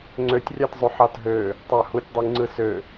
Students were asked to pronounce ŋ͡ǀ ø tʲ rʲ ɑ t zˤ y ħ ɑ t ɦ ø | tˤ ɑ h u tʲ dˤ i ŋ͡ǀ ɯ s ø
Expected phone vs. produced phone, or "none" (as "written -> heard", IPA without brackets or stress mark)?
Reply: none